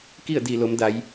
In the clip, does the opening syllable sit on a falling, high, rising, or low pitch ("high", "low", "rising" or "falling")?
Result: falling